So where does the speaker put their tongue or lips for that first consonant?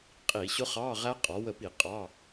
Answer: uvula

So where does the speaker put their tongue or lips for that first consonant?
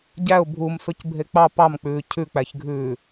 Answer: palate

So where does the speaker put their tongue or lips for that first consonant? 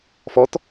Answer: lips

